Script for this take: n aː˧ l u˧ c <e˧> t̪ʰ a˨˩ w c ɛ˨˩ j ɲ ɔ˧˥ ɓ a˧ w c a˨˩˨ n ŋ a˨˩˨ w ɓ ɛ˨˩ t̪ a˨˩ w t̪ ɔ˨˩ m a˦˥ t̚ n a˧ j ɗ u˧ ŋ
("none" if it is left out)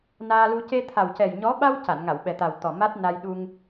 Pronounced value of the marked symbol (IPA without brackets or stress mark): e˧